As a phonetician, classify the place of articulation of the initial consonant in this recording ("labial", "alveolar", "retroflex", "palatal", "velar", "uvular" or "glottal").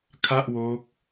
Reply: velar